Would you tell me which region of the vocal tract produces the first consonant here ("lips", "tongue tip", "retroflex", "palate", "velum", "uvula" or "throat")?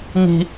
velum